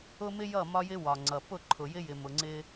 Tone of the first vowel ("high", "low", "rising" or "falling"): high